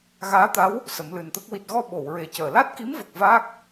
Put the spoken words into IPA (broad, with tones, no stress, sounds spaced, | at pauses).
ɣ aː˧˥ t̪ a˧˥ w | s ə˨˩˦ m l ɨ˨˩ n t̪ ə˦˥ k̚ w i˨˩ t̚ ɣ ɔ˧ ɓ o˨˩˨ w ɹ e˨˩˦ c əː˨˩˨ l a˦˥ t̚ k i˧˥ m v ə˨˩ k̚ v aː˦˥ k̚